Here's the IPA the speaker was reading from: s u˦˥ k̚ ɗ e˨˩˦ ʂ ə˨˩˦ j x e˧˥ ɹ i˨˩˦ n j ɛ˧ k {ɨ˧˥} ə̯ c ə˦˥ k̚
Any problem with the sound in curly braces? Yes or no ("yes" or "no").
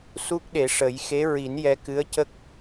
no